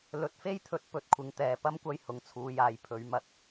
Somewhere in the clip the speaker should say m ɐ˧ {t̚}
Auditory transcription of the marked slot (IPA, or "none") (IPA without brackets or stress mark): t̚